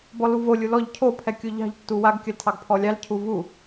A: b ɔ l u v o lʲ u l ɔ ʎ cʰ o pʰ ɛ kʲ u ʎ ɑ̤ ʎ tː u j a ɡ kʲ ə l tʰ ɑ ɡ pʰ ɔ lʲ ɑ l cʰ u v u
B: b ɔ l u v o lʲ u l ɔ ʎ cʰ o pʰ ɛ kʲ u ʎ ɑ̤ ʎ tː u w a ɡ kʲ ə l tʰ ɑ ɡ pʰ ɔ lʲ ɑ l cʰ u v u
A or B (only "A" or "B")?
B